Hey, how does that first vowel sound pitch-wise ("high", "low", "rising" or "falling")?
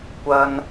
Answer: high